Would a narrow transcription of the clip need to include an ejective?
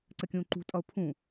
yes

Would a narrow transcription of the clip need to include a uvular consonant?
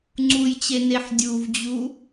no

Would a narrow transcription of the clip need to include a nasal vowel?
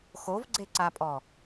no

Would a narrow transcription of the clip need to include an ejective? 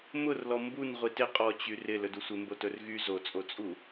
yes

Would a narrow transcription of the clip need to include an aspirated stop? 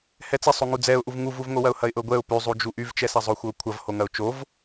yes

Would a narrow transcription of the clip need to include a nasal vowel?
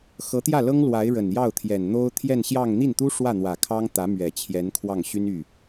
no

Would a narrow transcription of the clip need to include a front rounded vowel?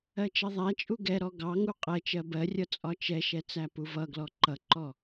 no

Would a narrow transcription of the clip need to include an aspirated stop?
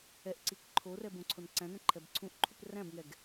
yes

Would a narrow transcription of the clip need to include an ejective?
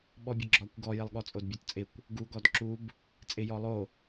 yes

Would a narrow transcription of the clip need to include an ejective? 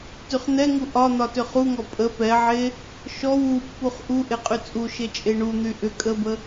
yes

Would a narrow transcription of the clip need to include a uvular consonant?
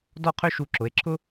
yes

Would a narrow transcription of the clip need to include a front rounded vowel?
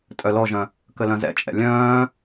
yes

